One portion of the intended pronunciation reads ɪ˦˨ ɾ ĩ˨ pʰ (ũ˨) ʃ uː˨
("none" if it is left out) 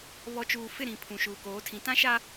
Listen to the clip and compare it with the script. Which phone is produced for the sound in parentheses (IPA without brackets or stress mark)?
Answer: ũ˨